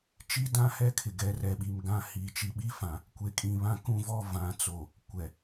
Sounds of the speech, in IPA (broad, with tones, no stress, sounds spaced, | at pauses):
t͡ʃ i˦ d ã˦ h ɛ˦ kʰ ɪ˨ ɡ ɛ˨˦ r ɛ˨ ɓ i˨ m ɡ ã˦˨ h i˨ t͡ʃ i˨ ɓ i˦ f ã˨ | kʷ e˨ kʼ ĩ˨ β ã˦ k ũ˦˨ v ɔ˦˨ v ã˨ t͡s o˨ | kʷ ɛ˨